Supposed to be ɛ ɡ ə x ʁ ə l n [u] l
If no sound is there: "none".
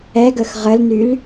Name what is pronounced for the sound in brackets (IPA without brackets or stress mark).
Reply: y